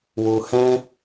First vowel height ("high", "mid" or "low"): high